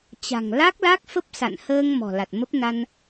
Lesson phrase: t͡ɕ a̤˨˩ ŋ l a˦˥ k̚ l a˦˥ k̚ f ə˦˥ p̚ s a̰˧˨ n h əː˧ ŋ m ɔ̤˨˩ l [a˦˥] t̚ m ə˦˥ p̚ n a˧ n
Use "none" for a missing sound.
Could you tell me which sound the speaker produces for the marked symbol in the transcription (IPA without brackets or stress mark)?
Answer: a˨˩